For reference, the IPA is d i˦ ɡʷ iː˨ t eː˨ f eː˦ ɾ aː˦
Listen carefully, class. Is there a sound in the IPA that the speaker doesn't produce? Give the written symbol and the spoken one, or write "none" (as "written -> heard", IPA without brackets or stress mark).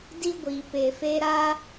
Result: t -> p